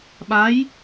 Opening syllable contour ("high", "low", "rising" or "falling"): rising